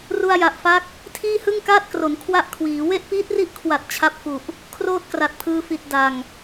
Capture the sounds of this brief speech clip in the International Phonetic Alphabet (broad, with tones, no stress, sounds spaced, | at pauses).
r u˧ a̯ j a˨˩ ʔ f a˦˥ k̚ | tʰ iː˥˩ h ɯ˥˩ ŋ k aː˥˩ t̚ k r o˩˦ n kʰ w a˥˩ ʔ kʰ w iː˩˦ w e˥˩ ʔ p iː˦˥ t̚ r i˦˥ ʔ kʰ w a˨˩ t̚ t͡ɕʰ a˦˥ p̚ f u˨˩ ʔ | kʰ r oː˥˩ t̚ k r a˨˩ t̚ pʰ ɯː˧ f i˨˩ t̚ d a˨˩ ŋ